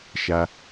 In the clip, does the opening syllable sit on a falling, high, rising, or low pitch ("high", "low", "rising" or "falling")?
low